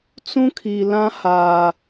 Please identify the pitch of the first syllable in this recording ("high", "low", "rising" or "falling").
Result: high